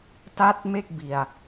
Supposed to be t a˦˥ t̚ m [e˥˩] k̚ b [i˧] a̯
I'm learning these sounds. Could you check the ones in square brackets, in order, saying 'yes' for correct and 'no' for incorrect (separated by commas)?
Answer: yes, yes